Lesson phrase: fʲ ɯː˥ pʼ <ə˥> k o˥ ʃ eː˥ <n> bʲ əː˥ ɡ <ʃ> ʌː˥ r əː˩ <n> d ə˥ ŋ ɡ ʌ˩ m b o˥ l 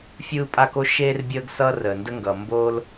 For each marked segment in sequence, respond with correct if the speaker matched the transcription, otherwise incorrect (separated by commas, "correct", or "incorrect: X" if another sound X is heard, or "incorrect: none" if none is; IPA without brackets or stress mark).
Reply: incorrect: a˥, incorrect: r, incorrect: s, correct